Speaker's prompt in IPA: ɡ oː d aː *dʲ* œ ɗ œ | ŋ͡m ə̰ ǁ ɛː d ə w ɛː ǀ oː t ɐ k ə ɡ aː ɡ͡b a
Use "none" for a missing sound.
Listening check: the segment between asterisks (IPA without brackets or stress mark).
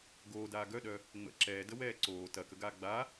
ɡ